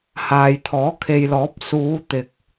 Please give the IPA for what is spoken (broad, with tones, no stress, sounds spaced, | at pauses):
h aː˨ j t̪ʰ ɔː˨˥ kʰ e˨ j l ɔː˨˥ p̚ s uː˨˧ t̪ ɪ˨ k̚